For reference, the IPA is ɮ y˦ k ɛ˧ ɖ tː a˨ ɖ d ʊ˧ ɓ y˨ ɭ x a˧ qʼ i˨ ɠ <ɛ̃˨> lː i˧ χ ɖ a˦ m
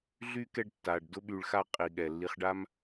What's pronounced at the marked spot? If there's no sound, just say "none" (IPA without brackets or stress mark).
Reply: ɛ˨